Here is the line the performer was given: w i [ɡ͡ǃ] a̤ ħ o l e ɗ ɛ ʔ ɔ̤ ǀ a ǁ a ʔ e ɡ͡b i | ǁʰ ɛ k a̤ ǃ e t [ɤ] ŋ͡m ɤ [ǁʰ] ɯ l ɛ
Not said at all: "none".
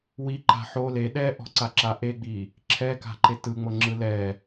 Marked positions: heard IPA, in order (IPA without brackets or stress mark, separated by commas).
ǃ, ɯ, ŋ͡ǁ